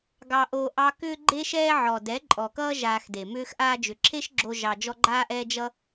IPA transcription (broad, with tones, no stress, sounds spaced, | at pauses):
ɡ ɑ˧ ʔ oː˧ ʔ ɑ˦ k ʏː˦ ɡ͡ǃ e˦ ʃ ɛː˦ ʕ ɔ˨ d ɛ˨˦ ǃʼ ɔ˨ k ʌː˦ ʒ aː˧ x d e˨ m ʏː˧ x ʔ aː˧ d͡ʒ ʏ˨ ǁʰ e˦ ʃ ɡ͡ǁ o˧ ʒ ɑ˧ d͡ʒ ɔ˦ ɡ͡ǃ aː˦ ʔ ɛː˦ d͡ʒ ʌ˦